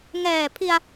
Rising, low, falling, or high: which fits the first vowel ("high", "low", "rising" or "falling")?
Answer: low